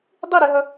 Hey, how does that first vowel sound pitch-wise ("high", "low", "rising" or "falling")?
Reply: falling